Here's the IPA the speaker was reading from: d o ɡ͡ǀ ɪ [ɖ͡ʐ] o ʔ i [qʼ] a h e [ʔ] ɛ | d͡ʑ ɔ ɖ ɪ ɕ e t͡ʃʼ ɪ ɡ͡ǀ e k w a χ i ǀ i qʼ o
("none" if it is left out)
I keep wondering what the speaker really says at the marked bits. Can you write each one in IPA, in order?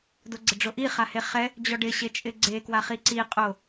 ɖ͡ʐ, χ, χ

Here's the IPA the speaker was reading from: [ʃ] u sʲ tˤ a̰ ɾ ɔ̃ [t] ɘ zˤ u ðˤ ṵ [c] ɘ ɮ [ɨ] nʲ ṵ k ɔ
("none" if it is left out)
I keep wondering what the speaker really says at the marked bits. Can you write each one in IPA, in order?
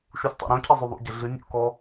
ʃ, cʰ, ɟ, ɨ

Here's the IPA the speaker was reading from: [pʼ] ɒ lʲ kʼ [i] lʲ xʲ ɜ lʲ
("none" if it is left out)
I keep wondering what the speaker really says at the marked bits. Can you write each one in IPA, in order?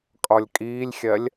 kʼ, iː

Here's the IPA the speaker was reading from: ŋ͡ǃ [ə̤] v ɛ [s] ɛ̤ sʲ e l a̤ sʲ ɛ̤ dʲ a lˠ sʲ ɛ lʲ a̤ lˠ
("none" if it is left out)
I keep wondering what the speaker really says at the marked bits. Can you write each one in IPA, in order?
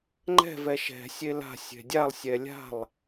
ɛ̤, ʃ

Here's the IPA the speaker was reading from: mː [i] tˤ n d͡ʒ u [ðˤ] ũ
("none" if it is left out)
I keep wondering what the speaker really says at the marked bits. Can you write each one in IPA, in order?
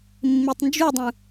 i, dˤ

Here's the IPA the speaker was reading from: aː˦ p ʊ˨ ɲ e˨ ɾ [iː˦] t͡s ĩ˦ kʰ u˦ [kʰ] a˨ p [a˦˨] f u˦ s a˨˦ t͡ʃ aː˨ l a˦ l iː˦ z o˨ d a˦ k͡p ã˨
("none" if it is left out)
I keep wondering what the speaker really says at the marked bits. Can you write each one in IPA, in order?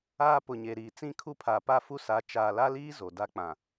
iː˨, pʰ, a˦

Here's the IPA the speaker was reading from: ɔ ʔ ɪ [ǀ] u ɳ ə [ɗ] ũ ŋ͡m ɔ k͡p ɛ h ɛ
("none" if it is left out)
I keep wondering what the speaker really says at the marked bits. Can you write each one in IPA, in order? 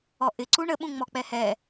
ǀ, ɓ

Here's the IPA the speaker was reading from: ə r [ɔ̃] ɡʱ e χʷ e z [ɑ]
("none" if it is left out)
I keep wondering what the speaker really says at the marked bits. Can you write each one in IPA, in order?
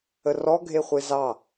ɔ, ɑ

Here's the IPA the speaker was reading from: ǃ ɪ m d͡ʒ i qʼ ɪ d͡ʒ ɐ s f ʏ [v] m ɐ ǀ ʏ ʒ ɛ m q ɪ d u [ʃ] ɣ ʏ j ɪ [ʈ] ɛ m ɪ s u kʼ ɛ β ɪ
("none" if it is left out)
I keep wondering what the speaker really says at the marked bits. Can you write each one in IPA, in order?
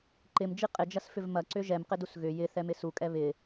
v, s, θ

